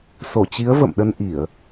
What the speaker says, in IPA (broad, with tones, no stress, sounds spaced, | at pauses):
s o˧˩ t͡ɕ i˨˦ ə̯ v ə̰˧˨ m ɗ ə˧ n ʔ i˧˩˨ ə̯